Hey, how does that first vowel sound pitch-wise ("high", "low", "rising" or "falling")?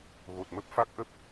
low